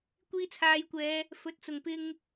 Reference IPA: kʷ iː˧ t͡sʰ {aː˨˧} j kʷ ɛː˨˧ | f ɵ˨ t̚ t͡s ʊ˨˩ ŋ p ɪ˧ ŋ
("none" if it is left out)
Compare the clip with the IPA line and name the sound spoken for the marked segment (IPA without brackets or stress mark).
aː˨˧